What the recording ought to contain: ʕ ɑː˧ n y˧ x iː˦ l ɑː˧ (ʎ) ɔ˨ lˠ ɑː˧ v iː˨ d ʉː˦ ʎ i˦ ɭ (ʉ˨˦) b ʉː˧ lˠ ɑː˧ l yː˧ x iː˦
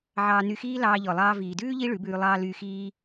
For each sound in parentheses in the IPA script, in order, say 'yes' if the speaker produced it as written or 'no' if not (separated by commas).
yes, yes